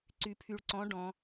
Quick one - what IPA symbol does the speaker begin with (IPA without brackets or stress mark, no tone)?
ǀ